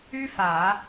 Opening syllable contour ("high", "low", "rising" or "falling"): high